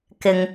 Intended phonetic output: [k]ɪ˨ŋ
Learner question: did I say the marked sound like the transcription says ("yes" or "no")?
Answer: yes